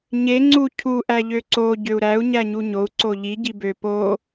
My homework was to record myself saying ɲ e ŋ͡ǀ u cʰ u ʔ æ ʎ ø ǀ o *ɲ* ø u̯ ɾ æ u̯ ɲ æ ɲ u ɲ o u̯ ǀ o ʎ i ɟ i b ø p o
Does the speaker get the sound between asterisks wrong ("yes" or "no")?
yes